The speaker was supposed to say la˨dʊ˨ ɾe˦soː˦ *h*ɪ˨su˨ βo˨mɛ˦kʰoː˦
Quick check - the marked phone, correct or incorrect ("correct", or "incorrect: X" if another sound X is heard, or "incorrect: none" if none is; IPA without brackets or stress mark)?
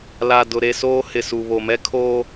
correct